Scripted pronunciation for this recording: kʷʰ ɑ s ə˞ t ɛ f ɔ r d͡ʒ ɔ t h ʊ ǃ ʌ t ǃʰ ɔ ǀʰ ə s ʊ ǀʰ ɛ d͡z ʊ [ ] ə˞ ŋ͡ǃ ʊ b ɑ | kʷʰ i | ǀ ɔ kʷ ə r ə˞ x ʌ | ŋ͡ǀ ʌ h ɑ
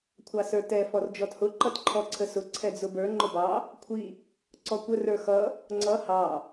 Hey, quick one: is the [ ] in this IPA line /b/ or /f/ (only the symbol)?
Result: b